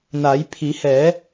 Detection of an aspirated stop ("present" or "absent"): present